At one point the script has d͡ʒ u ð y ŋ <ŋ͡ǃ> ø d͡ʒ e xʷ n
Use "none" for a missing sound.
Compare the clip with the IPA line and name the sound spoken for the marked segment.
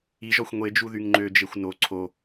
ŋ͡ǃ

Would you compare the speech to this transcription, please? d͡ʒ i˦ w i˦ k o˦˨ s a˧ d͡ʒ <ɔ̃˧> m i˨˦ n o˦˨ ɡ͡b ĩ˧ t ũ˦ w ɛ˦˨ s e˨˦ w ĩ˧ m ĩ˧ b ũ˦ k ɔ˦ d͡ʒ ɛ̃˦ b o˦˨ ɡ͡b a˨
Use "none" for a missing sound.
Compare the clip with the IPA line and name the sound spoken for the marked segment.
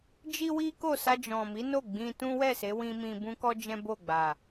ɔ̃˨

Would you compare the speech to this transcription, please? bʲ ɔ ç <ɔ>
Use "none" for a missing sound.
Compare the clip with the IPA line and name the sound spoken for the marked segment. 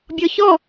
ɔ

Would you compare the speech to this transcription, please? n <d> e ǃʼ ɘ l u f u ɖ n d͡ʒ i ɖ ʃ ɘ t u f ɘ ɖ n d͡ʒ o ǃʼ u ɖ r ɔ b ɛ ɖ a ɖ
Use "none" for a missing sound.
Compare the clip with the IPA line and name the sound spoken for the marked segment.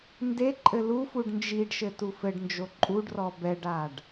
d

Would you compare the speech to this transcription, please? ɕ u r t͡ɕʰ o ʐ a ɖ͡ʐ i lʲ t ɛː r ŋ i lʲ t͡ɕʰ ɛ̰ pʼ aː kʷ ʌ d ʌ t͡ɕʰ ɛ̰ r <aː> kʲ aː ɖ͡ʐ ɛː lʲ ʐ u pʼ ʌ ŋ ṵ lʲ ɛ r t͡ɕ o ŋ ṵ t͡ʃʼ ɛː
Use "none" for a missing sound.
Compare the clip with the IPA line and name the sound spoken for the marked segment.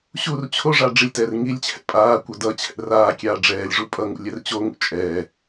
aː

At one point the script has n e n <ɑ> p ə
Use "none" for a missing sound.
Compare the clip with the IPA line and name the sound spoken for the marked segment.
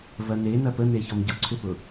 ɐ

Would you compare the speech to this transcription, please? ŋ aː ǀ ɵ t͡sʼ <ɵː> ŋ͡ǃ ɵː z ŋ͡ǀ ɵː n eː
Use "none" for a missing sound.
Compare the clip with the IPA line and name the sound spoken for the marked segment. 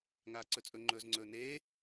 ɵ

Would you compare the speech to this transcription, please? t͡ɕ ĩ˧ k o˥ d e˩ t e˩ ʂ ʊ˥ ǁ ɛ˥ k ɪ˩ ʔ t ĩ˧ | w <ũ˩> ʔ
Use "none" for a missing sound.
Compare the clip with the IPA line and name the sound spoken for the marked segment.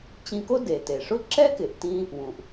ũ˩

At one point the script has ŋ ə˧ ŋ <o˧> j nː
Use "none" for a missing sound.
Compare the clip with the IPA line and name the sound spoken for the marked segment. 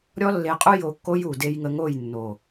o˦˨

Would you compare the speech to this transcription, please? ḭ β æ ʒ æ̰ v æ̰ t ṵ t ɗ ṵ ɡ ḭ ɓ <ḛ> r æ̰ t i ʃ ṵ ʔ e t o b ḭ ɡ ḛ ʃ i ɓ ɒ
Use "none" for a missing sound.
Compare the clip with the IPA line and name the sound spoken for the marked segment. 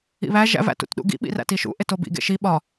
ḭ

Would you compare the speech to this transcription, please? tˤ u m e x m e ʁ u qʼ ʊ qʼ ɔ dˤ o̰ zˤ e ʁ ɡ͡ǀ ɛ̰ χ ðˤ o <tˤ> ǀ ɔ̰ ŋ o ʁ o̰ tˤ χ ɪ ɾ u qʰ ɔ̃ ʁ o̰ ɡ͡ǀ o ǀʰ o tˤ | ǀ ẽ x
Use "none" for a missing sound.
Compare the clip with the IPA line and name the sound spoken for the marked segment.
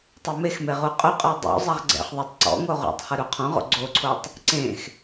tˤ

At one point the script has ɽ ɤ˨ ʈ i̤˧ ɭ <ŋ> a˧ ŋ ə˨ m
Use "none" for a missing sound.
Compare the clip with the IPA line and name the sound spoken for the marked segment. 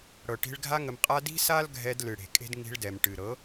ɡʱ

